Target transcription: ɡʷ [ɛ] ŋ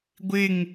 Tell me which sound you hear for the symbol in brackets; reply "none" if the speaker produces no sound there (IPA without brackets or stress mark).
ɪ